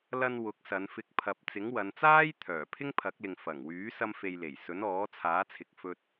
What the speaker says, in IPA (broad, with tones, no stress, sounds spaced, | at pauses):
l ɐ˧ n w ʊ˨˥ k̚ s ɐ˨˧ n f ɪ˧ k̚ pʰ ɐ˧ p̚ t͡s ɪ˨˥ ŋ w ɐ˨˧ n t͡s aː˥ j t̪ʰ œː˨˩ pʰ ɪ˥ ŋ pʰ ɐ˨˥ k̚ l ɪ˨ ŋ f ɐ˨˩ ŋ w yː˨˥ s ɐ˧ m f e˨ j l e˨˩ j s ɵ˨˥ n ɔː˨˥ t͡sʰ aː˨˥ t͡sʰ ɪ˨ k̚ f ɵ˧ t̚